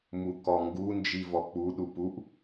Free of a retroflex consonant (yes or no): yes